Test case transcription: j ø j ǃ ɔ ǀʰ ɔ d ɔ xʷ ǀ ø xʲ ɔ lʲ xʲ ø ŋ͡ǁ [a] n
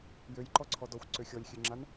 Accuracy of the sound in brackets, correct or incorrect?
correct